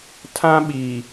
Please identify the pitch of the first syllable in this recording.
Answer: high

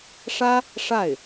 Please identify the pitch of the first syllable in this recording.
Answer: high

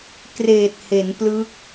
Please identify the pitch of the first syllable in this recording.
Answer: low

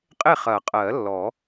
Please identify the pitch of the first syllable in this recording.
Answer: falling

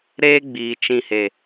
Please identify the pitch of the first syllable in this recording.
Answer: high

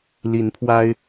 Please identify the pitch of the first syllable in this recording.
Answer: rising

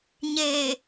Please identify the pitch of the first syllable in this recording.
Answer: low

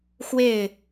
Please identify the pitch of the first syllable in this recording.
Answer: falling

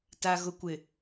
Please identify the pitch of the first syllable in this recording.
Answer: low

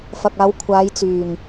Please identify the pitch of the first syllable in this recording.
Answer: low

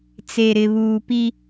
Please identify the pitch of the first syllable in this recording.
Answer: low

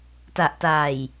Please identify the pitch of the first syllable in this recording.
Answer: low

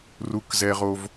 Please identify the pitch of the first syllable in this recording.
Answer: high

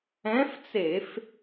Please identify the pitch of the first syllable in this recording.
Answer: rising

